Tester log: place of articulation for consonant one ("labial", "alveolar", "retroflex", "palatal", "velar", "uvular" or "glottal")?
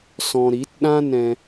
alveolar